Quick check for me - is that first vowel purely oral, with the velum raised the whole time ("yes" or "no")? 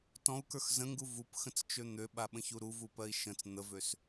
no